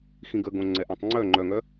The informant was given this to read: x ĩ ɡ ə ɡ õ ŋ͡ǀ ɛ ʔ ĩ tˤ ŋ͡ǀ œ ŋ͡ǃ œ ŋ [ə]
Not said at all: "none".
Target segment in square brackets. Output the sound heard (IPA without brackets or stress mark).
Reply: œ